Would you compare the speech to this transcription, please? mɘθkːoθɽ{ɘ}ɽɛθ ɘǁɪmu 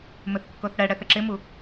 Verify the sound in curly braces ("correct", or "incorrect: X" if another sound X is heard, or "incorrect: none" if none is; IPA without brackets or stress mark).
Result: incorrect: ɛ